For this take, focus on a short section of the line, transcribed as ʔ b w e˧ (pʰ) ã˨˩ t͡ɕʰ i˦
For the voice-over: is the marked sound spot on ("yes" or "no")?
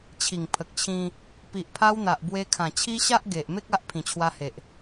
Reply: no